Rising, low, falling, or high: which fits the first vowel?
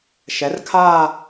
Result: rising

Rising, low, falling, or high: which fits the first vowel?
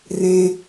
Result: high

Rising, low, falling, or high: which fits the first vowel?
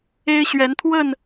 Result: high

